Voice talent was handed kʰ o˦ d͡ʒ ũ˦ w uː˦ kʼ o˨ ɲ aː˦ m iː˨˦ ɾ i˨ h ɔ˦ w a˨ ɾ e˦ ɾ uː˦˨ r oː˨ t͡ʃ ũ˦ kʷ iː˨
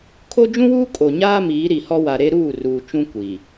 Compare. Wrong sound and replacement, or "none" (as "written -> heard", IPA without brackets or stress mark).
oː˨ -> uː˨